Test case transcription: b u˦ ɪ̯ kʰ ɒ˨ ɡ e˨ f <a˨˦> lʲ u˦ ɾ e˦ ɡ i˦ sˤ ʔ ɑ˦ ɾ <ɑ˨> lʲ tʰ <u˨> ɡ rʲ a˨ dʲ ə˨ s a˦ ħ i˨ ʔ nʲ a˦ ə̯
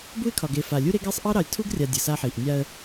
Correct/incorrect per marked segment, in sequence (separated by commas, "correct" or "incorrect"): incorrect, correct, incorrect